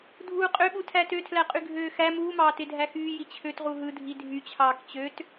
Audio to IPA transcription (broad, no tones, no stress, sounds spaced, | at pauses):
dʱ uː qʼ ø ɓ u tʰ æ t ø tʰ l æ qʼ y ɡʱ øː x æ m uː m ɑː t e dʱ æ x yː j i t͡ɕʰ ø t ʁ u ɦ ɯ dʱ i dʱ y t͡ɕʰ ɑː k t͡ɕ ø t